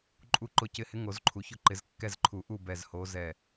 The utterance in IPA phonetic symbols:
ǃʼ u˦˨ ǃ ʊ˧˥ c ɪ˧˥ h ɪ˧˥ ŋ o˨˩˦ z ǃʰ u˨ ç ʊ˦˨ ǃ ɪ˨˩˦ z kː ɛ˦˨ z ǃʰ u˨˩˦ ʔ u˦˨ b ɛ˦˨ z h o˧˥ z ɛ˦˨

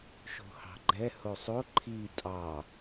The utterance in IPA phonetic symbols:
ʃ o̤ h ɑ̤ ɡ͡ǃ ɛ h o sˤ o ǃʰ i tʼ ɑ

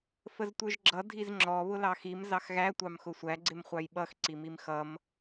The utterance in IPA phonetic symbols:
f ə z tʷ ə˞ ʒ ɡ͡ǁ ʌ dʱ i z ŋ͡ǁ ɔ β ʊ l ɑ x i m z ɑ x ɣ æ tʷ ɑ m x ʊ sʷ æ ɡ͡ǀ ɪ m χʷ ɑ j ɓ ʌ x ǀ i m i m x ʌ m

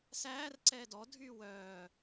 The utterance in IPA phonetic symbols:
s æː r ǀ ɛː d ɔ dʱ yː w œː

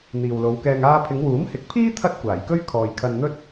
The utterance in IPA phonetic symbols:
n̪ iː˨ w l o˨˧ w k ɛː˧ ŋ aː˥ pʰ ɪ˨˧ ŋ w uː˨˥ m h ɪ˨˥ k̚ pʰ iː˥ t̪ʰ ɐ˥ t̚ kʷ aː˨˩ j k ɵ˥ ɥ kʰ ɔː˨ j kʰ ɐ˧ n n̪ ɵ˥ t̚

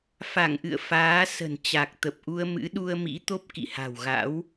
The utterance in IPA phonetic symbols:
f a˧˩ ŋ ʔ ɨ̰˧˨ ə̯ f aː˨˦ s ə̤˨˩ n t͡ɕ a˨˩ k̚ t̪ ə˨˩ p̚ ʔ u˧ ə̯ m ɨ̰˧˥ ɗ u˧ ə̯ m ḭ˧˥ t̪ o˦˥ p̚ k ḭ˧˨ h a̤˨˩ w ɣ a̰˧˥ w

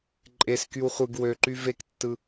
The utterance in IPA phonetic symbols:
ǃʼ e s k y w χʷ ɯ ɡ w ø ǃ y v e k tː ɯ

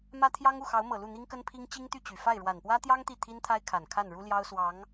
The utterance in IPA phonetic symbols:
m ä˥ t̪ʰ j ɑ˥ ŋ u˥˩ x ɑ˧˥ ʊ̯ m ɤ˨˩ l u˥˩ n̪ i˥ ŋ k ə˥ n pʰ i˥ ŋ t͡ɕ i˥ ŋ t̪ y˥˩ t͡ɕ y˨˩ f a˥˩ ɪ̯ ɻ w a˨˩ n p w ä˥ t̪ j ɑ˥ ŋ t̪ i˥˩ t̪ʰ i˥ n t̪ʰ a˥ ɪ̯ kʰ a˨˩ n kʰ a˥˩ n ɻ u˥ l j ɑ˥ ʊ̯ s w ɑ˧˥ ŋ

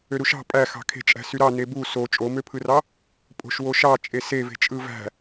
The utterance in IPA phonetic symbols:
ø ɾ u ʃ ɑ̤ pʼ æ x ɑ̤ kʰ e̤ t͡ʃʼ æ̤ s y ɾ ɑ n e b u s o t͡ʃʼ o m ø pʰ ɯ r ɑ | pʼ o̤ ʃ w o ʃ ɑ t͡ʃʼ e s e v e̤ t͡ʃʼ ɯ v æ̤

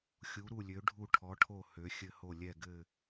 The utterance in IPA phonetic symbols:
xʲ u˩˧ ɾ u˧˩ lʲ ø˩˧ ɖʱ u˧˩ ʈʰ ɔ˩˧ ʈʰ o˧˩ h ø˩˧ xʲ ɘ˧˩ h o˧˩ lʲ ɛ˧˩ ɡ ɘ˧˩

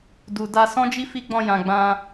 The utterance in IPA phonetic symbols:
d u˨ d a˧ s ɔ̃˦ d͡ʒ i˦ f i˦ ɡ͡b ɔ̃˧ j ã˨ ɡ͡b ã˧

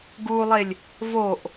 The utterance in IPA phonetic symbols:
ɡ u lˠ e lʲ | v o ʔ

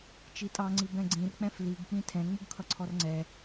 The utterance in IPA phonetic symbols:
t͡ʃ i tʼ ɑ ŋ͡ǀ i b ɛ̃ ɡ͡ǀ ĩ r k͡p ɛ̃ f l i ɡ k͡p ĩ tʰ ɛ̃ ŋ͡m u ɡ kʰ ʌ ǀʰ ɔ r ŋ͡ǀ ɛ

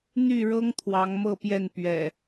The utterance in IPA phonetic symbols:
n̪ y˥˨ ɻ ɤ˦ ŋ t̪ʰ w ɑ˨˦ ŋ m ɤ˥˨ p j ɛ˥˨ n p ɥ ɛ̰˨˩

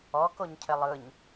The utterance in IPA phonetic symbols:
ɔ k o ɲ cʰ ɘ lˠ ɯ ɲ

